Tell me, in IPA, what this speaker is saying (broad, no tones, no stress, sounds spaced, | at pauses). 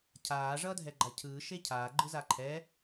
cʰ aː ʐ ʌː dʱ ɛ ɡ͡ǃ a cʰ ɯː ʃ e cʰ aː ɡ͡ǃ ɯ z a ǃʰ ɛ